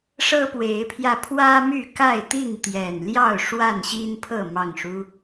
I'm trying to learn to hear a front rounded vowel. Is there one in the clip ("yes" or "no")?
yes